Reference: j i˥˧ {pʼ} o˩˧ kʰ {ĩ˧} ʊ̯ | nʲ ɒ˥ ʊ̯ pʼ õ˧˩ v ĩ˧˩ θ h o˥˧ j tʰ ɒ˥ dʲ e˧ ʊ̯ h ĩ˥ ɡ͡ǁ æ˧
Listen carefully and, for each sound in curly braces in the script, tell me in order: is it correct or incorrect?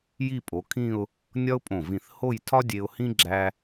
correct, incorrect

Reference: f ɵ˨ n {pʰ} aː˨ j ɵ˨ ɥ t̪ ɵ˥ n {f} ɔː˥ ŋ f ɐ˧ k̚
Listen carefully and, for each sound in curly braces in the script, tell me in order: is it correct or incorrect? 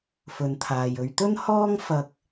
incorrect, incorrect

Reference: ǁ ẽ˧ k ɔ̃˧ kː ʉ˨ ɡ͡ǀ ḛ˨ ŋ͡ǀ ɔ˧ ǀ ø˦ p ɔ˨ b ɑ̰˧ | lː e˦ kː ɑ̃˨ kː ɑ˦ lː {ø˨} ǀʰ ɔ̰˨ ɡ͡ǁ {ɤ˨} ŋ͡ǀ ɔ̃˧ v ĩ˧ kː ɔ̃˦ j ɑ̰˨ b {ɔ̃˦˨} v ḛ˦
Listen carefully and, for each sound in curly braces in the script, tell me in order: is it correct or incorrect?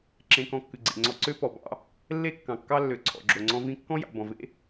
correct, incorrect, incorrect

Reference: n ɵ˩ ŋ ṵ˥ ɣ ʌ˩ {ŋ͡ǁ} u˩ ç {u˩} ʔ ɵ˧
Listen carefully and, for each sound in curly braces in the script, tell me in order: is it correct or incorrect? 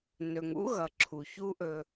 incorrect, incorrect

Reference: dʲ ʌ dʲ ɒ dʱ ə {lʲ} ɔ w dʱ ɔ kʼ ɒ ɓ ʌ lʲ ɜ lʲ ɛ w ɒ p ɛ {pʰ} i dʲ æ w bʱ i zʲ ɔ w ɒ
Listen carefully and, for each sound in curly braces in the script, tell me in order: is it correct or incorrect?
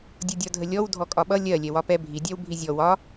correct, incorrect

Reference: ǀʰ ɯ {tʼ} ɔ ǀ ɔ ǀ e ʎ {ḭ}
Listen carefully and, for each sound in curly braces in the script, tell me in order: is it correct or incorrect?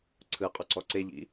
incorrect, correct

